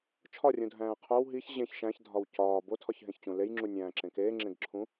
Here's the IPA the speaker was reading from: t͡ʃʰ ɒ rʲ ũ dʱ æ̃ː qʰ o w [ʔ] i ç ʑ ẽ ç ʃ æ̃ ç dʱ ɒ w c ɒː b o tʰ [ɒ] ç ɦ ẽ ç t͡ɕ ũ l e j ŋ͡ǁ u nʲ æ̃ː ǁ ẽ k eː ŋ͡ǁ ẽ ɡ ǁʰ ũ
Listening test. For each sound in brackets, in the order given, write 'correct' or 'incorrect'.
incorrect: ɦ, correct

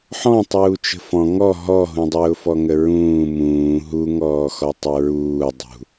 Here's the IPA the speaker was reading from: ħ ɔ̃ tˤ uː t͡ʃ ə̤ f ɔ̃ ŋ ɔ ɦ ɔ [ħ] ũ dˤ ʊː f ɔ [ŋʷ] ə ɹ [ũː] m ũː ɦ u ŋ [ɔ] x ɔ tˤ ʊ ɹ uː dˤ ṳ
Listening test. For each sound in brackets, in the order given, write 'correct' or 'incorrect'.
incorrect: ɦ, incorrect: ŋ, correct, incorrect: ɔː

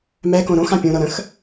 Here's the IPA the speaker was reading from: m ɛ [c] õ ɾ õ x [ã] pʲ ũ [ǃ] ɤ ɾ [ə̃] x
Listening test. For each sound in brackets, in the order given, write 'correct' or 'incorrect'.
incorrect: k, correct, incorrect: ɾ, correct

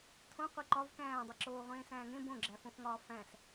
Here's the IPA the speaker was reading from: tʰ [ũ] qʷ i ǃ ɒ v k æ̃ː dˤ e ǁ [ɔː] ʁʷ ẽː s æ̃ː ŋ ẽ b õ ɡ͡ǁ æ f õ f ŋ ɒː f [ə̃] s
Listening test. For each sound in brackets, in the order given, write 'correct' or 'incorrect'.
incorrect: õ, incorrect: oː, incorrect: æ̃

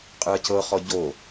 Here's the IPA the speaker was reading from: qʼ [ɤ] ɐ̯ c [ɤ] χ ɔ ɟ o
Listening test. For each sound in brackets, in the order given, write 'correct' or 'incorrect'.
incorrect: ɯ, correct

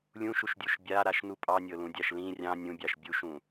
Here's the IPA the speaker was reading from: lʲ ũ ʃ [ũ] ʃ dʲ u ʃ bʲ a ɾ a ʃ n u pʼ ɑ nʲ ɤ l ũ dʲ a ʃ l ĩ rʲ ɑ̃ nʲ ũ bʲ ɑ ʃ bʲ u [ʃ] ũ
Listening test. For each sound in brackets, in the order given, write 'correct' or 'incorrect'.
incorrect: u, correct

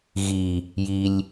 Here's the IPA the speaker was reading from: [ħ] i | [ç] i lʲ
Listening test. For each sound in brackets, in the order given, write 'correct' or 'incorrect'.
incorrect: ɣ, incorrect: j

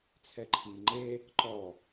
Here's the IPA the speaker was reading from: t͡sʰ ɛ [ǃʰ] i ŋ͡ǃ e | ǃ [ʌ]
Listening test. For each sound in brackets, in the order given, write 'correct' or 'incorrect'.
correct, incorrect: ɔ

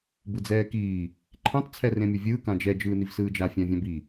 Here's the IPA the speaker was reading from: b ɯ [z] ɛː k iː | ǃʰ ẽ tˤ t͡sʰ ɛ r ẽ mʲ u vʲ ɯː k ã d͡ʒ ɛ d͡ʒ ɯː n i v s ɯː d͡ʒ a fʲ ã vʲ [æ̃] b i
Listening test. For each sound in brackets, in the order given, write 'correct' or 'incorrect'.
incorrect: d͡z, incorrect: ã

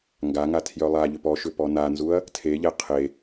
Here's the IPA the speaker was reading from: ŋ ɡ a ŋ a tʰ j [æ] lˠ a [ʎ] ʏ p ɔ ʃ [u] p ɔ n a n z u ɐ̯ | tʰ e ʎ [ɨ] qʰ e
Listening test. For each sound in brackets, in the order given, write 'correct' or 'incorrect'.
incorrect: œ, correct, incorrect: ʏ, incorrect: ɛ

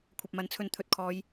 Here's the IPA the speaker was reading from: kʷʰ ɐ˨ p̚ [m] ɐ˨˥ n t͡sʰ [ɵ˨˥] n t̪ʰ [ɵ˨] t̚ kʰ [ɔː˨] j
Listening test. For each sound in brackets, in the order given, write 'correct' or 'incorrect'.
correct, incorrect: ɵ˧, correct, incorrect: ɔː˨˧

